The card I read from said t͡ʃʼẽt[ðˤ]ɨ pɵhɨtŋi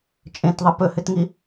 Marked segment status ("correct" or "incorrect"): correct